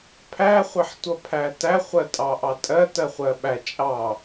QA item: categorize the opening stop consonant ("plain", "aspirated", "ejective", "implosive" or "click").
aspirated